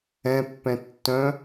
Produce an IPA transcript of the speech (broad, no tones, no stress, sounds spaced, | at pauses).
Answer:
ɛ̃ pː ɛ̃ tː œ̃